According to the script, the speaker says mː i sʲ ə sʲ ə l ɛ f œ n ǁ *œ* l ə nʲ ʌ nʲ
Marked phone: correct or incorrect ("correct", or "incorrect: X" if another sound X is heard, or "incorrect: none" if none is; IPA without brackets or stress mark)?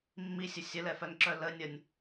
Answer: correct